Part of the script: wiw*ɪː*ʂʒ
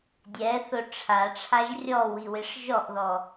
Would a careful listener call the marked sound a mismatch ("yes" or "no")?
yes